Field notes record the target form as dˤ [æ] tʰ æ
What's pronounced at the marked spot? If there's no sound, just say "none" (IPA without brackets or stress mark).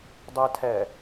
a